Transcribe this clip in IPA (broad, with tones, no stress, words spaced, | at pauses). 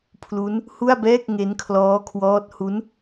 pʰlu˦˥n | hu˥˩a̯bɛː˥˩k̚ ŋe˦˥nkʰlɔː˦˥kʰwɔː˦˥t̚ hu˦˥n